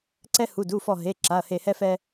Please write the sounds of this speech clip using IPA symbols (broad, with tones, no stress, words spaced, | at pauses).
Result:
ǀɛ˦ hu˩˧˩du˩˧˩fɔ˧˩ ɦe˩˧˩ ǁa˩˧˩ɐ̯he˧˩hɛ˦fɛ˦